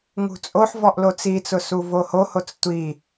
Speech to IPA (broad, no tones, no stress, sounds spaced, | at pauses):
ŋ ṳ t͡sʼ o ħ v ɔ ʔ l o t͡s i t͡s ʊ s u v o h o h o t͡s tʷ i